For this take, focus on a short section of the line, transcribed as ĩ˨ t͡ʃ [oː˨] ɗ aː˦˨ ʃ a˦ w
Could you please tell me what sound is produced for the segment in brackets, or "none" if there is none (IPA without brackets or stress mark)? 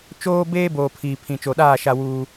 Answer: o˨